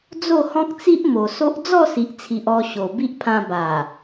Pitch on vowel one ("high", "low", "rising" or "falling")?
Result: falling